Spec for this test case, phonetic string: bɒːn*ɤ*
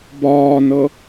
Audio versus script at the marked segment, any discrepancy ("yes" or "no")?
no